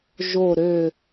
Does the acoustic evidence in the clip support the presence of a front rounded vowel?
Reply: yes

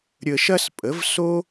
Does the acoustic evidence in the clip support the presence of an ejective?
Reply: yes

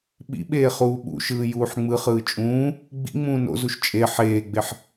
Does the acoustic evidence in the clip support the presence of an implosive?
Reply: yes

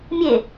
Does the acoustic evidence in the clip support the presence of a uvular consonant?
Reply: no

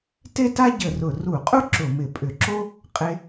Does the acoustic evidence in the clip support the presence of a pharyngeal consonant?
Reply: no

